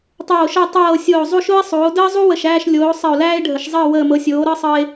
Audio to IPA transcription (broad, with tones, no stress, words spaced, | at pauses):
tˤoː˨˩ʃɤ˦˨ tˤɤː˨˩ sʲoː˨˩zˤu˦˨ʃo˦e̯sˤuː˩˧o̯ dəː˦zˤu˦ wə˨˩ʃæː˦˨ʃ lʲoː˩˧ sˤə˨˩o̯læː˦e̯ɖʱə˩˧ʃzˤəː˦˨ wəː˨˩mɤ˩˧sʲoː˩˧ ɾɤ˦ sˤɤ˦e̯